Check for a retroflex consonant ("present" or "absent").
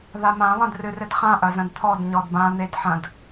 absent